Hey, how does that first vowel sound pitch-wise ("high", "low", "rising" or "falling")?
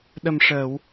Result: low